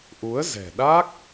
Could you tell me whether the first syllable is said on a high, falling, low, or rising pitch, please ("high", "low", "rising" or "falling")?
rising